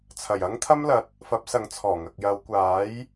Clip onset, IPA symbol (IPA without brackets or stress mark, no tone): t͡sʰ